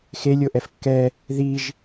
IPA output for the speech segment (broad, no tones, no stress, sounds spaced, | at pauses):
x e lʲ o ʔ ɛ f kː ɛ | ð i ʒ